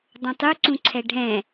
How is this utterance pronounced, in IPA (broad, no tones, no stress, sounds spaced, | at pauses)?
dˤ õ tˤ u ǀ ũ ǀʰ ɛ ɖʱ ɛ̃